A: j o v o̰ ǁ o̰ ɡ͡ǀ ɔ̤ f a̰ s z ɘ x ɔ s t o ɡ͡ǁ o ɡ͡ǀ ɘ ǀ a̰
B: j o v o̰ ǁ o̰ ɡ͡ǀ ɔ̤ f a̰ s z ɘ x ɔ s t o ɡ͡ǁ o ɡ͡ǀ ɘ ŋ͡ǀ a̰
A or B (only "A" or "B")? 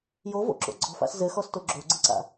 A